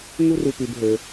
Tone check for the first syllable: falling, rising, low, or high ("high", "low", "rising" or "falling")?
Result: high